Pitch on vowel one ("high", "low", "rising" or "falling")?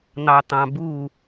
low